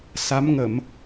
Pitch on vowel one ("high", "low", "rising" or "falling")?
rising